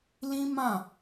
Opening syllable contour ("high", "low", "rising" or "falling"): high